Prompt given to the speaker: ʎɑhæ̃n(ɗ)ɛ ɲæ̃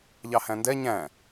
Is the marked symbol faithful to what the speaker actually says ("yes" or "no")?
no